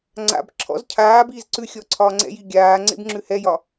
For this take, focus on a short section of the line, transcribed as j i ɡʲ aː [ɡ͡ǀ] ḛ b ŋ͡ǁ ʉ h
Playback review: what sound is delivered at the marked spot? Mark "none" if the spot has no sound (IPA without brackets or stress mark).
ŋ͡ǀ